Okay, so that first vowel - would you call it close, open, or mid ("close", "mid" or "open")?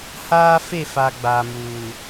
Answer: open